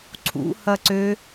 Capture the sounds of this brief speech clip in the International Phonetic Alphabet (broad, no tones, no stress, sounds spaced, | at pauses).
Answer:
ǀʰ ṵ h ɐ ǀ ø